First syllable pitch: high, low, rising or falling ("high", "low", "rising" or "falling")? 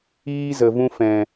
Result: high